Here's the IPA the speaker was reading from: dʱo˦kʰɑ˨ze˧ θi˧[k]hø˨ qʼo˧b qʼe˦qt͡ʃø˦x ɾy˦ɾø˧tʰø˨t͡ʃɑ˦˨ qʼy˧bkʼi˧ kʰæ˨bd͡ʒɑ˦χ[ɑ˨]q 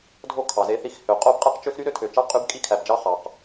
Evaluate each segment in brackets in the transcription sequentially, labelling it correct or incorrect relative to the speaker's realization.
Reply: incorrect: x, correct

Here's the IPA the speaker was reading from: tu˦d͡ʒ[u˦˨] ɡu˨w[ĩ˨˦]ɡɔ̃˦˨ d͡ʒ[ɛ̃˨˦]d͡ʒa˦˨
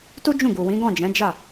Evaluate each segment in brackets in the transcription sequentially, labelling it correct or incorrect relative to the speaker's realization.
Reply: incorrect: ũ˦˨, correct, correct

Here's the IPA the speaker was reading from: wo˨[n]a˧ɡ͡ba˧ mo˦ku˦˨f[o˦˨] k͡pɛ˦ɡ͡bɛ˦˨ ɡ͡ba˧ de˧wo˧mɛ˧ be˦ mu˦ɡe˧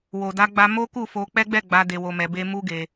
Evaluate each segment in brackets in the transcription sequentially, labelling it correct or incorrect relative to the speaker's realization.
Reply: incorrect: d, incorrect: o˧

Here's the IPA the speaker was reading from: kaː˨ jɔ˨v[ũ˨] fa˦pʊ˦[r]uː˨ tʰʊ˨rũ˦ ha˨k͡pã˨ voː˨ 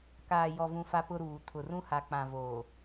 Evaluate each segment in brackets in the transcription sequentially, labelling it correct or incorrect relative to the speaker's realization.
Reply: correct, incorrect: ɾ

